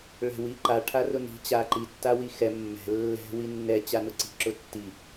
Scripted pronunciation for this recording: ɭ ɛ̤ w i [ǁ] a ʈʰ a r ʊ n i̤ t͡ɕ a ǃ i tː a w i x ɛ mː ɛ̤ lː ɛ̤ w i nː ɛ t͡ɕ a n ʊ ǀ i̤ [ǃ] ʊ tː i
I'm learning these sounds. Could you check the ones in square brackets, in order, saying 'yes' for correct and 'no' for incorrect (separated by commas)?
no, no